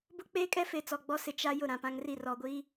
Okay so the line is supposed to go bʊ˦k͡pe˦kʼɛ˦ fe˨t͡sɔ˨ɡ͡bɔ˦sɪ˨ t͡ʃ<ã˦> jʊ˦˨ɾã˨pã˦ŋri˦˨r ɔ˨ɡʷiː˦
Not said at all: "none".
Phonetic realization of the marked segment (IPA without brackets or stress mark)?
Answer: a˦